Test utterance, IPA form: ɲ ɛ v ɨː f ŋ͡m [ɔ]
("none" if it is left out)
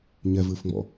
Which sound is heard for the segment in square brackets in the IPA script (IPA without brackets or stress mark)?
ɔ̰